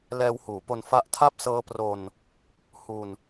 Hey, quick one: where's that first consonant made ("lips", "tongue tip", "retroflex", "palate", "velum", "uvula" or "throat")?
tongue tip